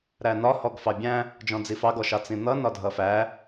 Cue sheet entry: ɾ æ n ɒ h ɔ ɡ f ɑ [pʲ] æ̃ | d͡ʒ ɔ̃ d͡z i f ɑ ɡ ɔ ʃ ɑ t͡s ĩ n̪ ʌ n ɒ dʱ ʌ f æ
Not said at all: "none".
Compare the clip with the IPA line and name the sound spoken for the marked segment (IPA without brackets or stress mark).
bʲ